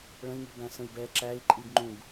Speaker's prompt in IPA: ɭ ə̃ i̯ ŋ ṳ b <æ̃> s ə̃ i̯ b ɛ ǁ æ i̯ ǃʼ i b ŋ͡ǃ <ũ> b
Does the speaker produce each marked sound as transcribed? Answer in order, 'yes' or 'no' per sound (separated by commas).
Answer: yes, yes